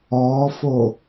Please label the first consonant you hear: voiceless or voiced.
voiceless